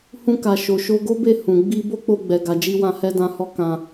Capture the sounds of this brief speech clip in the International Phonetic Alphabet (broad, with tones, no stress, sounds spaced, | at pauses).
h ũ˧ k a˨ ʃ o˨ ʃ o˧ ɡ o˦ b e˦˨ h ũ˨ ɡ͡b i˧ b o˦ k͡p o˧ ɡ͡b ɛ˨ ɡ a˨ d͡ʒ i˧ w ã˧ h ɛ˧ d ã˨ h ɔ˧ k ã˧